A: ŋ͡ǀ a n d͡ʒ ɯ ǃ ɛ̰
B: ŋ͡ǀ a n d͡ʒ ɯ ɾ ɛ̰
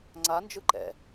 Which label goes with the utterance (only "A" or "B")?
A